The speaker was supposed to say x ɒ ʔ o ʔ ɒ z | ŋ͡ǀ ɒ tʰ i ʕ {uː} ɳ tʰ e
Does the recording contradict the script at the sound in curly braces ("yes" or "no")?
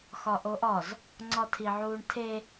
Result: no